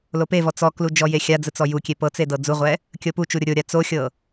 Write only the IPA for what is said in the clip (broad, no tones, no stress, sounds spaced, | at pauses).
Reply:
l o p e v ɔ t͡s ɔ k l u d͡ʒ ɔ j e xʲ a d͡z ɯ t͡s ɔ j u kʲ e p ɤ t͡s e d ɤ d͡z u ʁʷ ɛ | kʲ ɤ p u t͡ʃ u ɾʲ o ɾʲ o ɾʲ a t͡s o xʲ ɤ